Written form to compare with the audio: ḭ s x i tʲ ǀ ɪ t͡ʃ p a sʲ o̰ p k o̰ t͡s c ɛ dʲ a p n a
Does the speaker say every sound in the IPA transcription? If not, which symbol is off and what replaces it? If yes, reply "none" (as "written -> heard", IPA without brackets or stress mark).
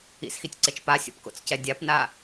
none